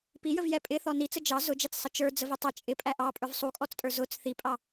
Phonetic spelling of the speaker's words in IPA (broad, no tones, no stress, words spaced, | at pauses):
pijəvjɛ pʼɪθɔ nit͡sə d͡ʒɑ zʊd͡ʒæt͡ssˤə t͡ʃə˞d͡zəvi tˤʌ t͡ʃʼɪpʼæ ʔɑpʼə˞v sˤukʼɔt͡stʼə˞ zʊt͡s θipʼɑ